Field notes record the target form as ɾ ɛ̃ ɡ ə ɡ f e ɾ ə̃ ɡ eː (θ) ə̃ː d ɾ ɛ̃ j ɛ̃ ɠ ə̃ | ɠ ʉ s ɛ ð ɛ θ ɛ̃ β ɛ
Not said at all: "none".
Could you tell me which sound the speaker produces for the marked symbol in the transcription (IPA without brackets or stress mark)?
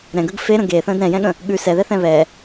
θ